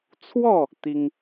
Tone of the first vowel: falling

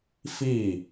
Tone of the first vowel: falling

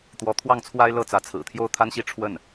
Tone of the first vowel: rising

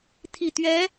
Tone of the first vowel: low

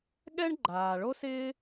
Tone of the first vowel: high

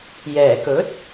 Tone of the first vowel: low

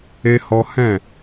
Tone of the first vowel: high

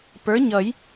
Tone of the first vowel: rising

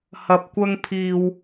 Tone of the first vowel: low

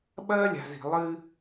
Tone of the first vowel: high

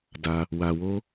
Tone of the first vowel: high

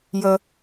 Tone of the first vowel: low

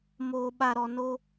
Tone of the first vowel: low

